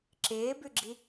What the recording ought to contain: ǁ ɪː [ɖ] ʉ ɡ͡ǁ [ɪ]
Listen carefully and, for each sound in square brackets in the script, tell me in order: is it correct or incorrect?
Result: incorrect: b, incorrect: i

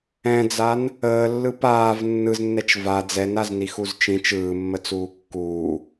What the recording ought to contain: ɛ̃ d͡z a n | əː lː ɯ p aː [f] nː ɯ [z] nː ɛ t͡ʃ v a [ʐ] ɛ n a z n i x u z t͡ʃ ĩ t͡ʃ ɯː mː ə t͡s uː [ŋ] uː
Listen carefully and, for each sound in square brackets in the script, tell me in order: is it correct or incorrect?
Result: incorrect: v, correct, incorrect: d͡z, incorrect: kː

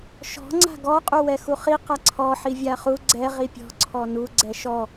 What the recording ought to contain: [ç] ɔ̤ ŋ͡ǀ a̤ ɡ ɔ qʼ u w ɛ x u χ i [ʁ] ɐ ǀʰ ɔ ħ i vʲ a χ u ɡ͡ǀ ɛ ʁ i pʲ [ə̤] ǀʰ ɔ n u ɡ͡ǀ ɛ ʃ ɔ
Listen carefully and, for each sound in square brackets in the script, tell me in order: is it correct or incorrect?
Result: incorrect: ʃ, incorrect: q, incorrect: ɔ̤

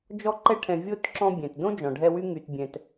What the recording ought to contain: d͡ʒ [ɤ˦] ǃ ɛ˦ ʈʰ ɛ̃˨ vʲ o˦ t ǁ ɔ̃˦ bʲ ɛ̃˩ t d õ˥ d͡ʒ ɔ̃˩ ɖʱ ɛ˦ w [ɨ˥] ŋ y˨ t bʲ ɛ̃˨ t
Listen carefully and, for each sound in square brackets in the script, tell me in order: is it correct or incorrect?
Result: incorrect: ɔ˦, incorrect: y˥

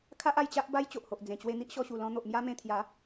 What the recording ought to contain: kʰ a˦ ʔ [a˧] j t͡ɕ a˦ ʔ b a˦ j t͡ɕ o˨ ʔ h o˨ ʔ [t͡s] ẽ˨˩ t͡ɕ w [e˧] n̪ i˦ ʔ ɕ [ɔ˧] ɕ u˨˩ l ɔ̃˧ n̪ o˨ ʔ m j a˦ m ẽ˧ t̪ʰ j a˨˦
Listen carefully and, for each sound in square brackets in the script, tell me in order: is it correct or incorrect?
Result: correct, incorrect: d͡z, correct, correct

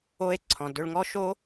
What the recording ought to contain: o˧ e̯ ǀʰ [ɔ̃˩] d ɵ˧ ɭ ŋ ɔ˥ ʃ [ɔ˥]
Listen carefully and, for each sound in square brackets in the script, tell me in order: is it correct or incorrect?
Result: correct, incorrect: o˥

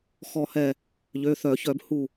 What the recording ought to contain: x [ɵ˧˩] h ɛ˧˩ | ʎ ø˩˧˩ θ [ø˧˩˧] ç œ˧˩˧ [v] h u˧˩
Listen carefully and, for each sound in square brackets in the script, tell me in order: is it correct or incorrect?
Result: incorrect: ɔ˧˩, incorrect: œ˧˩˧, incorrect: b

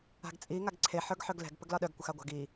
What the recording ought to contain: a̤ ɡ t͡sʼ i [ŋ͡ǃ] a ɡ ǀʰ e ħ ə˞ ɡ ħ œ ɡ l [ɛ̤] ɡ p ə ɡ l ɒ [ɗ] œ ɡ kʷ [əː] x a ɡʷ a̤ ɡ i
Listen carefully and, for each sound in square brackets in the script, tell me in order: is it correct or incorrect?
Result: incorrect: ŋ, correct, correct, incorrect: ə

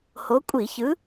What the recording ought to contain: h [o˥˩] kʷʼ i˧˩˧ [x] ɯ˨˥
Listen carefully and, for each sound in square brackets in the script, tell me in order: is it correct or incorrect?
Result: incorrect: o˨˥, incorrect: ç

